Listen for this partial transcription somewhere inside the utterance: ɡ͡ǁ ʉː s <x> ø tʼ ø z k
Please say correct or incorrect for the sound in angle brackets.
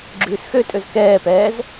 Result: correct